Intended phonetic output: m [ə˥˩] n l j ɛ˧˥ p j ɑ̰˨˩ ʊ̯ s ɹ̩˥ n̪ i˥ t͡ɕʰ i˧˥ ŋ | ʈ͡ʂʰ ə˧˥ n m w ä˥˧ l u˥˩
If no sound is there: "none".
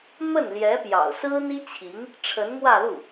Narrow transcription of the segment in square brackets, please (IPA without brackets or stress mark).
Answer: ə˥˩